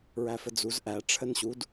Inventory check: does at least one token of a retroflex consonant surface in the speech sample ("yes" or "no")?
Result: yes